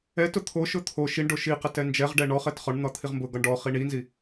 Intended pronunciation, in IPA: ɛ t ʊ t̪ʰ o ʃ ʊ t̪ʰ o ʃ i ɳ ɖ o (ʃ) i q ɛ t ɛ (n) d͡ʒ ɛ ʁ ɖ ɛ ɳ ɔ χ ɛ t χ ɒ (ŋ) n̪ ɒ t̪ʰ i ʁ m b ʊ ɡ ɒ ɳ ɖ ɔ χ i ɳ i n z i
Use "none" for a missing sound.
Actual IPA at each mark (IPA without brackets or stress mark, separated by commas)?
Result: ʃ, n, ɳ